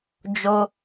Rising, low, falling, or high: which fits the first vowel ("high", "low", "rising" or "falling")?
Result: high